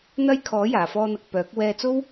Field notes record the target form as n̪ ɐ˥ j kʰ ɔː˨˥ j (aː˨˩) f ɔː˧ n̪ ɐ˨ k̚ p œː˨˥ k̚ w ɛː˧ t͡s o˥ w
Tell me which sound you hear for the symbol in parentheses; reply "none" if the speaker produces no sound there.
aː˨˩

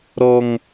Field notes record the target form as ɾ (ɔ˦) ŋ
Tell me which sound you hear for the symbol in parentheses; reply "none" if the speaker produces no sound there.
ɔ˦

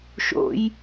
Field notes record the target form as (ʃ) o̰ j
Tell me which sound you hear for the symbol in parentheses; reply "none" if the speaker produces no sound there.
ʃ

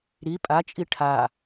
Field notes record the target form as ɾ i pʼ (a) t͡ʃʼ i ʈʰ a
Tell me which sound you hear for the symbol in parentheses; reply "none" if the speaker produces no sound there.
a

